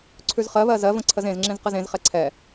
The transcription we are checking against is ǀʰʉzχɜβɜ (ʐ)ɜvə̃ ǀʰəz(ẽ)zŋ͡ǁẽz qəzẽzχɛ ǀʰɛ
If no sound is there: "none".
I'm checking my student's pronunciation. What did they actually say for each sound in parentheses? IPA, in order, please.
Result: z, ẽ

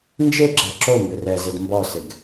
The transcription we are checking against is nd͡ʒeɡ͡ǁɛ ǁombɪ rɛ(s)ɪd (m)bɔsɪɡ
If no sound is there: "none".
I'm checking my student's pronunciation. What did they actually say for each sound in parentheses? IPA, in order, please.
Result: z, m

